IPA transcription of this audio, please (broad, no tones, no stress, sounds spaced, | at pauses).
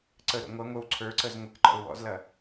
ǀ ə ɾ o̰ ŋʷ ɐ ŋʷ ə˞ w ǀʰ ə˞ ǀ ə z ŋʷ ɘ k ǃ ɔ̰ ʊ̯ w ɔ̰ z l ɐ